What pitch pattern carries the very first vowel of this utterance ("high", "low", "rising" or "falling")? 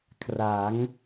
rising